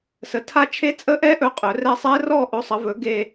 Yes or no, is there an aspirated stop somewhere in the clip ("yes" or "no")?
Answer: yes